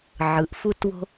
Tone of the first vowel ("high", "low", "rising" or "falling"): rising